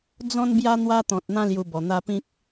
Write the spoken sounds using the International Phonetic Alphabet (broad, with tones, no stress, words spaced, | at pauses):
d͡zɔ̃˦nbja˦ n̪wa˦t̪ɔ̃˨t̚n̪ã˦ lju˧bɔ˨˩n̪a˦ pĩ˦k̚